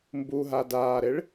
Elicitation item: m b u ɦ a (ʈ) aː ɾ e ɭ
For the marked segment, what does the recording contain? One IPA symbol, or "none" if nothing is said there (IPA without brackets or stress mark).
d